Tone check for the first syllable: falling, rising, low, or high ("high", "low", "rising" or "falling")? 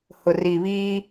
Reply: low